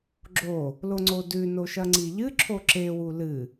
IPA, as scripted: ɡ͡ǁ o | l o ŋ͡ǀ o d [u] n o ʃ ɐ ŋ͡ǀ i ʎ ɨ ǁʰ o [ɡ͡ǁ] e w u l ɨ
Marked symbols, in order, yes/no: no, no

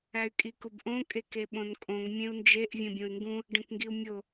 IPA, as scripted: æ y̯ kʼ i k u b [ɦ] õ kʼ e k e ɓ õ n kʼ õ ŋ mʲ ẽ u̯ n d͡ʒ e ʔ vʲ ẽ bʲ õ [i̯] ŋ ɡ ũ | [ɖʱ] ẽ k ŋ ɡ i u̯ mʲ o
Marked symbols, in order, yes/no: no, no, no

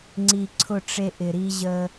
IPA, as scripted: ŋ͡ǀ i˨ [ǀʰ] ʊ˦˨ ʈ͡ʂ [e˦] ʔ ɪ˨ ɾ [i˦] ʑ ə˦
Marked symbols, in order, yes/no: yes, yes, yes

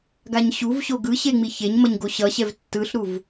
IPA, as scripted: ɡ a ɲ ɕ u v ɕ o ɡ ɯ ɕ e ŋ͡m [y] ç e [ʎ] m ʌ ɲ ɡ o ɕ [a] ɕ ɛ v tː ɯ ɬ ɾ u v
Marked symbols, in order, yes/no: no, no, no

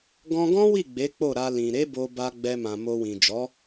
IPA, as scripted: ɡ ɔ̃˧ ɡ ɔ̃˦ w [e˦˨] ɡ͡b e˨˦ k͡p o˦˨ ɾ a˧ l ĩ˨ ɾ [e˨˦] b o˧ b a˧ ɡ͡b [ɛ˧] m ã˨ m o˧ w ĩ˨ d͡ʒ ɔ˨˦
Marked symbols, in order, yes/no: no, yes, yes

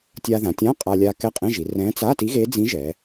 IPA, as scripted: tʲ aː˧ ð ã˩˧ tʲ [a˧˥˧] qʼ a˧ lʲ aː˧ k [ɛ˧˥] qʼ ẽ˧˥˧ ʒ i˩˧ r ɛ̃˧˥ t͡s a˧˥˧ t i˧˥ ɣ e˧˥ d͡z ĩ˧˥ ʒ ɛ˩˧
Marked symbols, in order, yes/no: no, yes

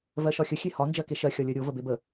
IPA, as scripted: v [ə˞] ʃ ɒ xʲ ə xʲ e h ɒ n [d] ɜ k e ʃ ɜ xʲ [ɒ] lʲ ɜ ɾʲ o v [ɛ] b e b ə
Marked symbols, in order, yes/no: no, no, yes, no

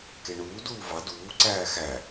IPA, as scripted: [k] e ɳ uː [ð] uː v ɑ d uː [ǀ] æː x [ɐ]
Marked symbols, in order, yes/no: yes, no, yes, no

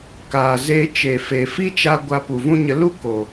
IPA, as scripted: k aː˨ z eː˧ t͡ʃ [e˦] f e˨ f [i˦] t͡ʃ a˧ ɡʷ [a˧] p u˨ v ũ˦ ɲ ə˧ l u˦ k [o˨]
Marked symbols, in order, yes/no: no, yes, yes, yes

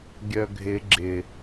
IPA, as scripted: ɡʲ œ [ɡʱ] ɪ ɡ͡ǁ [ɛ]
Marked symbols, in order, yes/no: yes, no

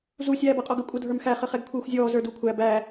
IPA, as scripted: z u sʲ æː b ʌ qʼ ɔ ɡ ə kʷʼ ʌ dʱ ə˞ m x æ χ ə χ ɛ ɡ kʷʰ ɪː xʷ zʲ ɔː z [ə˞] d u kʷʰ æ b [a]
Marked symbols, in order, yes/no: yes, no

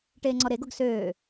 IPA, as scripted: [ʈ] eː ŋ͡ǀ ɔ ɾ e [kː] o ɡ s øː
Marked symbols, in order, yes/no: yes, no

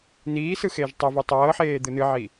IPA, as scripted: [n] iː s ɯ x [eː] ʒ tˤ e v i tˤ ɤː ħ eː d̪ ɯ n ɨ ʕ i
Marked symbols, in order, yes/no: yes, yes

